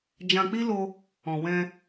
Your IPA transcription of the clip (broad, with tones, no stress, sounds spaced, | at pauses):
d͡ʒ ã˧ k͡p i˦ l o˧ | ɔ̃˨ w ɛ̃˧